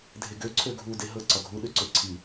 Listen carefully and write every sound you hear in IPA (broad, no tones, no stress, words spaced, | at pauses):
dʱeɡø ǀʰøɡʱu deɦɤ ǀɒɡʱu ɗøǀøǀʰi